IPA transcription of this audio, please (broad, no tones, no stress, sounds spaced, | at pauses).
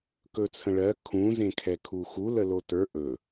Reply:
k ɵ t͡sʰ ə̃ ɭ ɜ kʰ ũ z ẽ kʰ ɛ kʰ u x u l ə l o t ə˞ ʔ ɵ